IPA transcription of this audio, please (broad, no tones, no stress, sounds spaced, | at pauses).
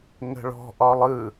ŋ ə̤ ɭ ɔ̤ ʔ ɒ lˠ ɯ